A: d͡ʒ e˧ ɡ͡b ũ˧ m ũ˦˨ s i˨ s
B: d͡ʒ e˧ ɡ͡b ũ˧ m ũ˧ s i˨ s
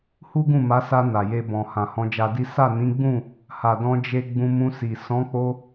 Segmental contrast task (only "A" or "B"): B